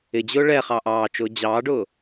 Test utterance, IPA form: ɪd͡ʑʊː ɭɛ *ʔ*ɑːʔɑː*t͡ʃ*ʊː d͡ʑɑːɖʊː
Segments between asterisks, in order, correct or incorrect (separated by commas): incorrect, correct